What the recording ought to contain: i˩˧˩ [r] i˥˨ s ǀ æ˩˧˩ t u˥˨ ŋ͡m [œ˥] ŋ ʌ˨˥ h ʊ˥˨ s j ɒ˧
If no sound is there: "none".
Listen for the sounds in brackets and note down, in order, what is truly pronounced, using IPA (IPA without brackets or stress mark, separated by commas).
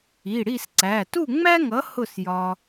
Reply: ɽ, æ˥